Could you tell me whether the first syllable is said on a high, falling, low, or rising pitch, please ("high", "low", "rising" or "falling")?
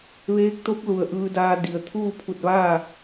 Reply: rising